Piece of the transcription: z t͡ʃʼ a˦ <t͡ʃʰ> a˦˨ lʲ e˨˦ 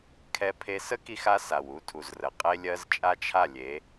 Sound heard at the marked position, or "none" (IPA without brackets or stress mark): t͡ʃʰ